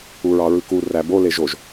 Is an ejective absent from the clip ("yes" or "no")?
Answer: yes